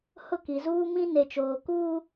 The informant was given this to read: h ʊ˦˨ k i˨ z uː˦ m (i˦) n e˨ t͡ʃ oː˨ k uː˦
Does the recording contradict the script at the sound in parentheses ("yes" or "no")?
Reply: yes